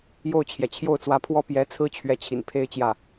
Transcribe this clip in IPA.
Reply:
jo˥˩ʊ̯t͡ɕʰjɛ˩ t͡ɕʰjo˥˩ʊ̯t͡swä˧˥pʰwɔ˥ pjɛ˧˥t͡sʰɹ̩˥ t͡ɕʰɥɛ˧˥t͡ɕʰḭ˨˩n pʰe˥ɪ̯t͡ɕjä˥˩

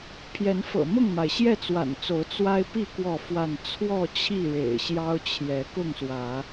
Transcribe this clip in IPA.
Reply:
pʰjɛ˨˦nfɤ̰˨˩mʊ˥˨ŋma˩ɪ̯ ɕjɛ˥˨t͡swa̰˨˩nt͡so˨˦ʊ̯ t͡swa˦ɪ̯pi˥˨ kwɔ˥˨fwa˥˨n t͡sʰwɔ˥˨t͡ɕʰi˥˨ ɻḛ˨˩ɪ̯ɕjɑ˦ʊ̯t͡ɕʰjɛ˨˦ kʊ˥˨ŋswä˨˦

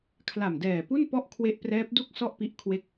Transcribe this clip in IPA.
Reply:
kʰla˨˩mdɛː˨˩pu˥˩n pɔ˥˩ʔkʰwe˦˥ʔprɛː˦˥p̚du˥˩k̚ sɔ˥˩ʔpi˦˥ʔ kʰwe˥˩k̚

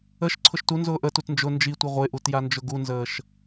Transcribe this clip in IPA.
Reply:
əʃ ǀʰʊʃtunzʊː ʔətut nd͡ʒʊ nd͡ʒi tʷiʁʷeʔut jand͡ʒʊɡunzəːʃ

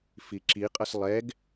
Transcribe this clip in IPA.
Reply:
fiǁiqʼʌs lˠɛɡ

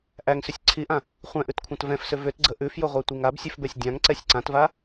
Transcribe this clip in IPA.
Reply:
ʔæŋsʏsʲ ǀʰiʔã | χʷɛ̃ʔʉtkʷʰãt vɛ̃fsʏ vʏtɡ͡ǀə ʔʉfjʊʁʷɛtʷiŋ absʲʉfbɛsʲ dʲãŋǀɛsʲ ǀãtva

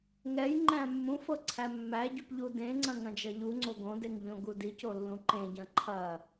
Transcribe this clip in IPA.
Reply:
ŋɛj ŋ͡ǃæ̃mːũfɤ ǀʰæmːæɟup ʎudẽŋ͡ǀɐ̃ ŋɐ̃d͡ʒɐʎuŋ͡ǀo ɡõdeŋ ʎõɡudico lːũǃẽɟɐ̃ ǃʰɐ

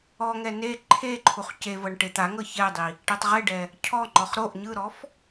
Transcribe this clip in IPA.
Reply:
ɔŋɛ ne ǃʰeǃʰuχ cevɤɳ ʈet̪aŋɤ çɛdˤi | ʈɛtˤʁeɖɛ | cʰɔŋ͡ǃɔχ ɾoʔ ɲɯɾɔf

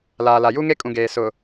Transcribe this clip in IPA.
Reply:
laː˨la˨ ju˦ŋe˦kʼũ˨ɡeː˨ sʊ˨

